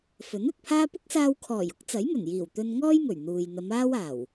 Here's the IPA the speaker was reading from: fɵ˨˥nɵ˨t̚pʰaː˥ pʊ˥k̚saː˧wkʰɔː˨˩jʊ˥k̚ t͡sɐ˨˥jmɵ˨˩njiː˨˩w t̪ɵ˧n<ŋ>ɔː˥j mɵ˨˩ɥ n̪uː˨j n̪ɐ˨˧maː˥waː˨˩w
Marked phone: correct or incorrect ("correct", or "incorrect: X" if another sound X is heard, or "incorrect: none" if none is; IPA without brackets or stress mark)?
correct